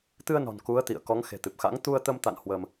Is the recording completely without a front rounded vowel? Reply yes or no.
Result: yes